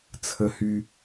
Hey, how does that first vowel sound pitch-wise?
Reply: high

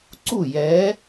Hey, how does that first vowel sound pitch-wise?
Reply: falling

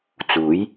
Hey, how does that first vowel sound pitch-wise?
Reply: rising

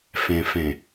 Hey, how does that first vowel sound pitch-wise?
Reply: low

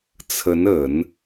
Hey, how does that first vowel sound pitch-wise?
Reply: rising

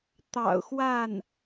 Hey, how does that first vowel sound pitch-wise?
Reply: low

